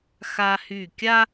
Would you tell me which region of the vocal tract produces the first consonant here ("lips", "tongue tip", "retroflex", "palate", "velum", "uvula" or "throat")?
velum